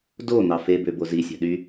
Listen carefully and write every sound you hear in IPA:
d o n̪ ɑ f e b ø b o z i sʲ æ̤ ɗ y

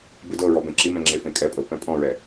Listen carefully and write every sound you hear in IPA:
b ɯ d ɤ ɹ ɔ b ɛ̃ ǁ i m ɛ̃ ŋ͡ǁ e f ẽ kʼ ɛ pʼ ɤ p ɛ̃ pʼ ɔ̃ ɹ ɛ

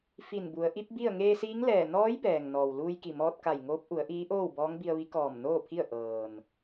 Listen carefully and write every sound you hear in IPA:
f i˧˩ n b u˩˧ ə̯ ʔ i˧˥ p̚ b i˥˨ ə̯ ŋ eː˧ s iː˧˥ ŋ l ɛː˧˩ n ɔː˧˥ j b ɛː˩ ŋ n ɔː˩ w l uː˧ j k i˧˩ m ɔː˧ t̚ k a˧˩ j ŋ oː˧˥ p̚ ʔ u˩˧ ə̯ ʔ iː˧˥ ʔ oː˥˨ w b ɔː˧˥ ŋ b i˧ ə̯ ʋ i˧˥ k ɔː˧˩ m n oː˥˨ pʰ i˥˨ ə̯ ʔ ɤː˩ n

